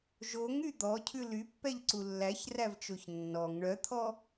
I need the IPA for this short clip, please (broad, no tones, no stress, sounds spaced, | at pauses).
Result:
ʒ o ŋ y d̪ ɔ cʰ ʉ l y pː ɛ ʎ ǀ u lː æ ç r æ v t͡ʃ o ç nː ɔ ŋ ɳ œ t̪ʰ ɔ